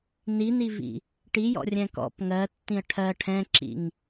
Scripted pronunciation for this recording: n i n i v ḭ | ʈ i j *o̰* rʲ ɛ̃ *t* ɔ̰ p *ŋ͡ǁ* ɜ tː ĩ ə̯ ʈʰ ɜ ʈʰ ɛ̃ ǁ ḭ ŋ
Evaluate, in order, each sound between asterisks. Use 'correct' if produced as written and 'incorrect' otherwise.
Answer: incorrect, incorrect, incorrect

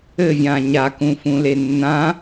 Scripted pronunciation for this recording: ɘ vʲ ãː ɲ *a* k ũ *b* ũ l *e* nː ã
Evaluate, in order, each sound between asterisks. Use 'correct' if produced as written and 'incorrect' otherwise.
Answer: correct, incorrect, correct

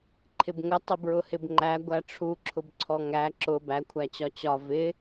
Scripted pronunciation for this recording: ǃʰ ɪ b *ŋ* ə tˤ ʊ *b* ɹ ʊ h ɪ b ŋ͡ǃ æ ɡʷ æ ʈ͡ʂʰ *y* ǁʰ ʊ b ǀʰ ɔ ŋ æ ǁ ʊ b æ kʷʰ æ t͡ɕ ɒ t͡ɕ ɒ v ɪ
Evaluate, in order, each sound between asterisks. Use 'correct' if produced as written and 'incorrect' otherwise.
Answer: correct, correct, incorrect

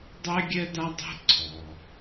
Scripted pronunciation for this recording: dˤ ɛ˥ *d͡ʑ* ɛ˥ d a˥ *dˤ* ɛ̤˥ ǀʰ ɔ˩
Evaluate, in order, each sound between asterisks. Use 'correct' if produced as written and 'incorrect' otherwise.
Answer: incorrect, correct

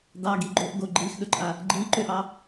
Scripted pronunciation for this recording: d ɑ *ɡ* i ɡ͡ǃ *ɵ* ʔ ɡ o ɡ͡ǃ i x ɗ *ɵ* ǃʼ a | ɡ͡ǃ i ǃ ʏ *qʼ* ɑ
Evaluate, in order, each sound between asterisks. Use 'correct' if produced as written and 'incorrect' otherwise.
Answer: correct, incorrect, correct, incorrect

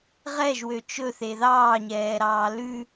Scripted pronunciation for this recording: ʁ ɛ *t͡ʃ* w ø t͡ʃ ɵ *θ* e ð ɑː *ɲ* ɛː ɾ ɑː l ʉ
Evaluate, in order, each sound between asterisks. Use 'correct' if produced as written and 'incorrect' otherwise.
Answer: incorrect, correct, correct

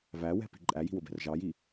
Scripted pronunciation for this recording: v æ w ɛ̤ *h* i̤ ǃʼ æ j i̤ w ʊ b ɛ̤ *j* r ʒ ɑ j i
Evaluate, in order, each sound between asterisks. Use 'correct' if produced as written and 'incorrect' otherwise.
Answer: incorrect, incorrect

